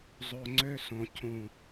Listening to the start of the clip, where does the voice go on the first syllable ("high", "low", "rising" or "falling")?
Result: low